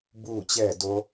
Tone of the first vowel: falling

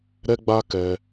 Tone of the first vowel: high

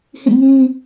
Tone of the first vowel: falling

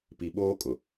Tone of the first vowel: low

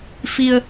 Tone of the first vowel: low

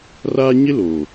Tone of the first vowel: high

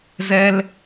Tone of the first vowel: high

